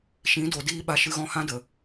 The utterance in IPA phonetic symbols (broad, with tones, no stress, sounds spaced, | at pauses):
ʃ ĩ˨˦ d o˨ d iː˧ ɓ a˨ ʃ ɨ˧ ɣ ɔ̃˦ h ã˦ d ə˨